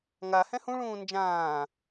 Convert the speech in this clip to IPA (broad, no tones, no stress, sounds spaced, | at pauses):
ŋ a h ɛ̃ h ũ ɭ ũː n d͡ʒ ãː